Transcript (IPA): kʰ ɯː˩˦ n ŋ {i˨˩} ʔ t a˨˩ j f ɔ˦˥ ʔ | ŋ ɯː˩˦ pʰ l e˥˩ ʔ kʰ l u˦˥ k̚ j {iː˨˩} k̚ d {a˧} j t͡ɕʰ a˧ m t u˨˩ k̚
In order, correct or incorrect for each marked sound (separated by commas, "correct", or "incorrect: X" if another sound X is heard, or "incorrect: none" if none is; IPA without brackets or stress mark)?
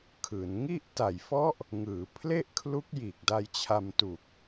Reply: incorrect: i˥˩, correct, correct